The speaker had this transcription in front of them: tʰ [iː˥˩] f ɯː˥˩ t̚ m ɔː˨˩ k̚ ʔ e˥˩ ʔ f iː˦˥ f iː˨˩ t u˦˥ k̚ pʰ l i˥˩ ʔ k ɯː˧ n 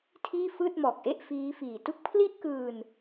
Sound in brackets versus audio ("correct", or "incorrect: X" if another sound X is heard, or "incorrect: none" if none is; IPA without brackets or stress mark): correct